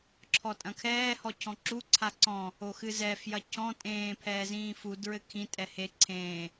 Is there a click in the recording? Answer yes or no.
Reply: yes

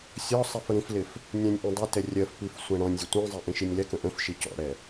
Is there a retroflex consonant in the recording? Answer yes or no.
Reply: yes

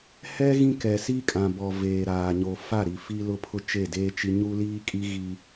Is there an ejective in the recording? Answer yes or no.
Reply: yes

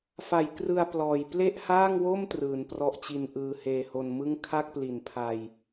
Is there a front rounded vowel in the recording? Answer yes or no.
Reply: no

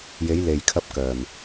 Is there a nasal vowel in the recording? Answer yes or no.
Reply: no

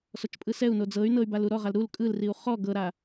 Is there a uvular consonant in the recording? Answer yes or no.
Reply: yes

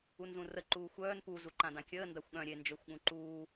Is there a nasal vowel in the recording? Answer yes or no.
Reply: yes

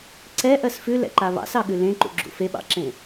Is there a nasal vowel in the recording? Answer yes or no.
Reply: yes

